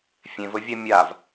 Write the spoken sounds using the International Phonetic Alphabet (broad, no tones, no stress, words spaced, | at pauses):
fʲẽvɵvʲa mʲav